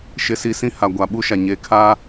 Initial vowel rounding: unrounded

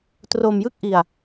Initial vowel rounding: rounded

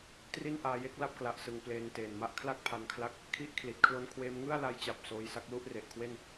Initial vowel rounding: unrounded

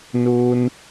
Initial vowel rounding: rounded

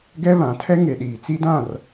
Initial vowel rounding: unrounded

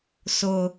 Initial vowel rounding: rounded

